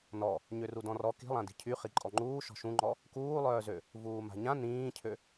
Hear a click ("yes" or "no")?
yes